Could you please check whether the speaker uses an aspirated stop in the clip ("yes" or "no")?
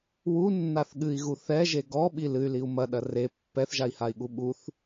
no